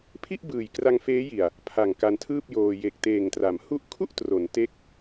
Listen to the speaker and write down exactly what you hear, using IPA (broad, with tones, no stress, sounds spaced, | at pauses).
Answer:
pʰ i˥˩ ʔ b ɯː˨˩ j k r a˧ ŋ f eː˦˥ j i˨˩ a̯ | pʰ a˨˩ ŋ k a˧ n tʰ ɯː˥˩ p̚ j oː˧ j e˨˩ k̚ t eː˨˩ ŋ t r a˩˦ m h u˦˥ ʔ kʰ u˥˩ ʔ t r o˩˦ n t e˥˩ k̚